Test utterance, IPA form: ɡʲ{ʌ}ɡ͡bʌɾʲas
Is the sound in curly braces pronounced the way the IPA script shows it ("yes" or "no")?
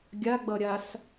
no